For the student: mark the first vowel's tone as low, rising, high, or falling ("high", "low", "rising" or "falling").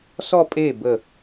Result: falling